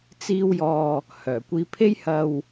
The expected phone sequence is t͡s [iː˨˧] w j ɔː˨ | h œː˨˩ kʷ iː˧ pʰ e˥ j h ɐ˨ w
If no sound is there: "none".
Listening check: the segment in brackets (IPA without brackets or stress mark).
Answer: iː˧